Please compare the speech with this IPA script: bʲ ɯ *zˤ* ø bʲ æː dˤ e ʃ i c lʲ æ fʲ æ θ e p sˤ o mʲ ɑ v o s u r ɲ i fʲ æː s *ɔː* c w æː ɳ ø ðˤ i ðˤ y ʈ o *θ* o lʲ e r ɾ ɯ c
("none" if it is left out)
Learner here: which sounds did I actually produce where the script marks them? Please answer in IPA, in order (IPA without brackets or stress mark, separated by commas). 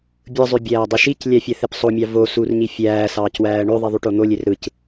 zˤ, ɑː, n̪